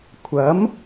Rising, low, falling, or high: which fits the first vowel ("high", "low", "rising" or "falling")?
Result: rising